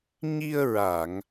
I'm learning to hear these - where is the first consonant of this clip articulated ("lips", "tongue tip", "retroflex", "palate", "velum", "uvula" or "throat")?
palate